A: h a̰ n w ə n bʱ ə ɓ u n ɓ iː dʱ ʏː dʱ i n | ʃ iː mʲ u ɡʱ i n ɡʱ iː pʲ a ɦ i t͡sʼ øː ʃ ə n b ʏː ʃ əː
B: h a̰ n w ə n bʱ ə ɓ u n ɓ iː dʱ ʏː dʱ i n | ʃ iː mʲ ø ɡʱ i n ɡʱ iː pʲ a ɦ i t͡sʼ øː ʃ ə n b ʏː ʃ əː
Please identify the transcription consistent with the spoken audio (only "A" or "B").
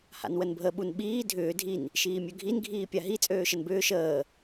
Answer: B